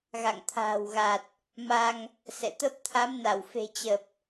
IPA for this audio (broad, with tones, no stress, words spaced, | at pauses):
ɣa̰˧˨ŋt̪ʰa̤ː˨˩wɣa˨˩t̚ | ma˧ŋ | sɛ̰˧˨t̪ə˦˥p̚ t̪ʰa˨˦mna˧˩wfe̤˨˩ t͡ɕə˨˩p̚